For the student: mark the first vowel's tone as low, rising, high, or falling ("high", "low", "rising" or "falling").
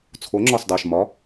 rising